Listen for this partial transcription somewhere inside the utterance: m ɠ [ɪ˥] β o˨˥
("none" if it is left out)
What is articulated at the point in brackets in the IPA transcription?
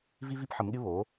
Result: ɪ˥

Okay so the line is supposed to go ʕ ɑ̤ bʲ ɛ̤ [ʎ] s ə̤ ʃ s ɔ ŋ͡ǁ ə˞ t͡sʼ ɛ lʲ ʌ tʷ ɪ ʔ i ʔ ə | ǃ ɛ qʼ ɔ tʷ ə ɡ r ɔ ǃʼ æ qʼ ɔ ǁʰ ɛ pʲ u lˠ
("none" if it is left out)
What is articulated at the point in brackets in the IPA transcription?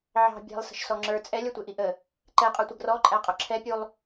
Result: lˠ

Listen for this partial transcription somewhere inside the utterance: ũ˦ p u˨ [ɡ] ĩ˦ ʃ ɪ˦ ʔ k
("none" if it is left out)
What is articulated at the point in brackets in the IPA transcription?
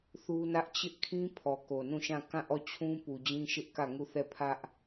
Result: d͡ʑ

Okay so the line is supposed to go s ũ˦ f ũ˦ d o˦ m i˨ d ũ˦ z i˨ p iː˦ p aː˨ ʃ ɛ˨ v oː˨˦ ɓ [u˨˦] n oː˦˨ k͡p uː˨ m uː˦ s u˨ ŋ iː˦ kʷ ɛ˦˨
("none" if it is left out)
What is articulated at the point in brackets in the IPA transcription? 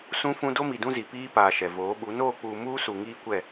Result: u˨˦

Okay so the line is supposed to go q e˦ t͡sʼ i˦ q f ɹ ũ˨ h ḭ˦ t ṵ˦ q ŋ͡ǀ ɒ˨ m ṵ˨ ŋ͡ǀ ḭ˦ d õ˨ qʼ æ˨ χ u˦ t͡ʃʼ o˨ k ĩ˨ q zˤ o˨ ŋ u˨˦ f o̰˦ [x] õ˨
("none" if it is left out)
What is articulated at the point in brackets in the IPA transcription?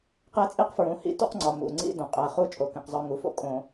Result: kʼ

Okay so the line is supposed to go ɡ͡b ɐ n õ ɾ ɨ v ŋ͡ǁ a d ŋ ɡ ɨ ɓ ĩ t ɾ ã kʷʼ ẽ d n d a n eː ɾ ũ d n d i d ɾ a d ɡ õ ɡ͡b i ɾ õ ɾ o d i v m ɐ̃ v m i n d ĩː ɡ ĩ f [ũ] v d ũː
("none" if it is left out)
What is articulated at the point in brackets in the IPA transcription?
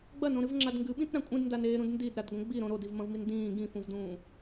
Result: ũ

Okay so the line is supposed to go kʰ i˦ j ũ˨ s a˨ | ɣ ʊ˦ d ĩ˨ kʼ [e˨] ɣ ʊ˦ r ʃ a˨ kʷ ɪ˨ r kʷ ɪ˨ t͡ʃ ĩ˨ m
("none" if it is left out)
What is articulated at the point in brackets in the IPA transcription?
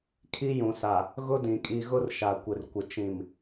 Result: i˨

